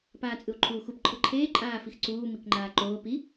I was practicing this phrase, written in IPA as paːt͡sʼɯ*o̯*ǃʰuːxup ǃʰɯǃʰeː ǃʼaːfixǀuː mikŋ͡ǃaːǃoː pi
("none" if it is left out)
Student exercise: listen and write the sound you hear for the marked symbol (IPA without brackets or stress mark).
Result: o̯